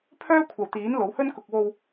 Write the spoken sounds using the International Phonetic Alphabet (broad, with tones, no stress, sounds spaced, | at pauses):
pʰ œː˥ kʷʰ ɐ˨ w t̪ iː˨˥ n l o˨˥ w h ɵ˥ n k ʊ˨ k̚ w o˧ w